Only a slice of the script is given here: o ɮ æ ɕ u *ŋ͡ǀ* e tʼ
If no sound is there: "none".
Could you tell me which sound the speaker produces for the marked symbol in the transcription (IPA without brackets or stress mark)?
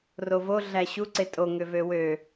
ǀ